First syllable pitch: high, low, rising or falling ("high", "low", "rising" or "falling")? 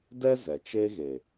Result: high